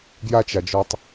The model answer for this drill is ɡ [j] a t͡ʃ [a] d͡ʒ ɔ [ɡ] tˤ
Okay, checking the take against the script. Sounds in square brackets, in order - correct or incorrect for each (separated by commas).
correct, correct, incorrect